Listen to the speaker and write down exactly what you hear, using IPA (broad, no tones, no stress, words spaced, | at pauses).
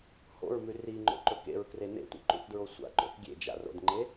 ho̰ɹmʉ riŋ͡ǃo̰ǃɵ kḛɹkre nḛtʷḭǃṵθdɹo sʷa̰ǃo̰θ ɡʲḛd͡ʒa̰ro̰dŋ͡ǃe